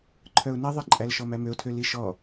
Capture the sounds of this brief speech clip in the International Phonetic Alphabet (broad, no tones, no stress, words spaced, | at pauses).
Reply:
ǃʰœʊ̯niðˤiǃʼæl ʃɔmæmøʊ̯tʰø liʃɔ